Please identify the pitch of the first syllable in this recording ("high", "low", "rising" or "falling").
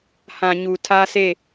low